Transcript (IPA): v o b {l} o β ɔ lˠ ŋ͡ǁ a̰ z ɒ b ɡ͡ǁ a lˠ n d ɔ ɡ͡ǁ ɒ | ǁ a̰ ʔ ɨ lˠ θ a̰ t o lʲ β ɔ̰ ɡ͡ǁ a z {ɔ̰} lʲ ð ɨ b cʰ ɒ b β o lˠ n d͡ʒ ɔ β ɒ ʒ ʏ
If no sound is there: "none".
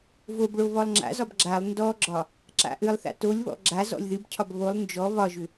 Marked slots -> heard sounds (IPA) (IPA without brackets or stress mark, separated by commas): ɭ, ɔ̰